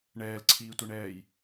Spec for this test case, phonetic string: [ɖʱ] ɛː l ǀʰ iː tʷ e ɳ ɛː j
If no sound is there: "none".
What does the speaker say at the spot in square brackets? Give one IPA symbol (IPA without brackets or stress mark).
ɳ